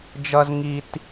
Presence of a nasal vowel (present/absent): absent